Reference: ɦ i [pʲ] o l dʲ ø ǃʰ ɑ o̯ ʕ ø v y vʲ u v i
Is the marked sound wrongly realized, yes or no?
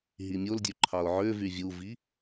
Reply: yes